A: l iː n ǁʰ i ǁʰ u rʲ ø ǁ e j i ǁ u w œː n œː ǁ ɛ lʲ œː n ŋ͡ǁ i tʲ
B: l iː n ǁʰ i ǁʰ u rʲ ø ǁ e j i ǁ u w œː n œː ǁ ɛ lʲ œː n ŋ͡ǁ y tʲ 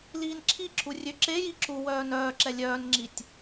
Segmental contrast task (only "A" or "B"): A